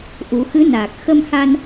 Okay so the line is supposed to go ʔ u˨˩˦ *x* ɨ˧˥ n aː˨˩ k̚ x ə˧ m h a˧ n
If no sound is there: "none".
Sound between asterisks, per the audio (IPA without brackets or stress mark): x